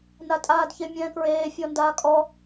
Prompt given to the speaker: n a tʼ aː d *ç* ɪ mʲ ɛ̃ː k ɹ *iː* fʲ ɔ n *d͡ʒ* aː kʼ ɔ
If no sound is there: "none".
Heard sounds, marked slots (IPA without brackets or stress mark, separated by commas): ç, eː, d